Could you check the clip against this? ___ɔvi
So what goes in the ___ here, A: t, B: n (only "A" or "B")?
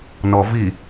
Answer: B